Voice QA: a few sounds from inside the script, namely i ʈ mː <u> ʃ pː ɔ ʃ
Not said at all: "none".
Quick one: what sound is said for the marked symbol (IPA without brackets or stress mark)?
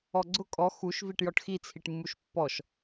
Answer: u